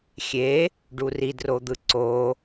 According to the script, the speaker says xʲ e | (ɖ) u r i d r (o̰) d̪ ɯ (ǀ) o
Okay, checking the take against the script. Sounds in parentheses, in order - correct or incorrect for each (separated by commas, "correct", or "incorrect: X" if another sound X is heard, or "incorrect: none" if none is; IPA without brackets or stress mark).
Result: correct, incorrect: o, correct